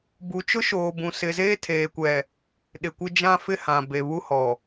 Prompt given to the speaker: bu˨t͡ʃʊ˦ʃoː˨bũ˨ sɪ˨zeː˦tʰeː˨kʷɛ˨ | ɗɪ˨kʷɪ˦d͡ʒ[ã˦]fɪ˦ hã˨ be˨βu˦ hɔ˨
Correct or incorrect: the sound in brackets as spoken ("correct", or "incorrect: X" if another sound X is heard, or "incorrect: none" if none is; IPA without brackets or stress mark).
correct